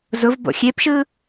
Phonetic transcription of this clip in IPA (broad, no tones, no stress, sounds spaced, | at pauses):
z ʊ v b o̰ xʲ e p ʃ ɯ